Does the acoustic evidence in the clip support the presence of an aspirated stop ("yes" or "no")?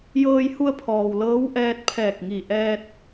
yes